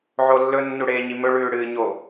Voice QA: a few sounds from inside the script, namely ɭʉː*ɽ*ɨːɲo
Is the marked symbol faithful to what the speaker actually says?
yes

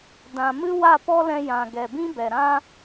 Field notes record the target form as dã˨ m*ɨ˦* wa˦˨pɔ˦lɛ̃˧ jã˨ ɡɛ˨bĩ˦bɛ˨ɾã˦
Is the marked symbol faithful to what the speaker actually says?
yes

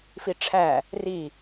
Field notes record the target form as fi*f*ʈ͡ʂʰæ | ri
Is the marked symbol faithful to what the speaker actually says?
no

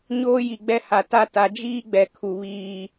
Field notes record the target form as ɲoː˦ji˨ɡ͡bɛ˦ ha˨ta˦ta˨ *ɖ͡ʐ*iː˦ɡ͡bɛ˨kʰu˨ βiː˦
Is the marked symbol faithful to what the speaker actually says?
no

